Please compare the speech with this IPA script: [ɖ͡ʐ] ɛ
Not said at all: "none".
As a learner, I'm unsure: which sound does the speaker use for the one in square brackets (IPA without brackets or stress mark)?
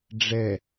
ɖ͡ʐ